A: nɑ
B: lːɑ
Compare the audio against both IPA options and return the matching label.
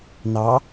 A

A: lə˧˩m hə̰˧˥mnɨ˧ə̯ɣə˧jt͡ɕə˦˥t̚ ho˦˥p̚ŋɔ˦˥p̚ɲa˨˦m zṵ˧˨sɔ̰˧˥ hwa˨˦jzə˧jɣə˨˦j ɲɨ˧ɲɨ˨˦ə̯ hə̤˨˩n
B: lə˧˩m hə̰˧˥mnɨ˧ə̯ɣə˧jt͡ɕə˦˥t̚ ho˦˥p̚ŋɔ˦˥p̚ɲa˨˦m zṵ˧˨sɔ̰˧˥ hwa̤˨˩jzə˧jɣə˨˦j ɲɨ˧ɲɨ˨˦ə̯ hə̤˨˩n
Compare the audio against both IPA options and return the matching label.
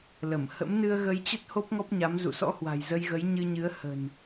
B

